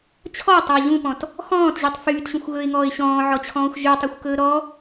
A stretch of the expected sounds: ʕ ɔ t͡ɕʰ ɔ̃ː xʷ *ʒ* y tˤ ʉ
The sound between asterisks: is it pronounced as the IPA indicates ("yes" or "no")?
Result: yes